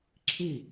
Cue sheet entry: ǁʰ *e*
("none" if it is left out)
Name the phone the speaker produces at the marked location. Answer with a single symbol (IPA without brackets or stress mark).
e